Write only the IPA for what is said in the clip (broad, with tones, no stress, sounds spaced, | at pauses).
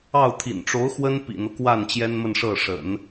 ɑ˥˩ ʊ̯ t̪ʰ ḭ˨˩ n ʈ͡ʂ o˧˥ ʊ̯ x w ə˥ n p ḭ˨˩ n̪ ɤ˦ k w a˥˩ n t͡ɕ j ɛ˥ n m ə˥˧ n ʂ ɤ˥˩ ʂ ə̰˨˩˦ n